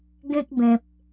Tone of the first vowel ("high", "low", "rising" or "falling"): high